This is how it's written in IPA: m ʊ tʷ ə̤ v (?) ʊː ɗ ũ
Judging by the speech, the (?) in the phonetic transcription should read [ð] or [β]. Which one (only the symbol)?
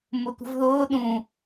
ð